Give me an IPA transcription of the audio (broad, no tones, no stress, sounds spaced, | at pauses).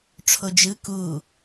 ʈ͡ʂʰ o d͡ʒ ɯ k u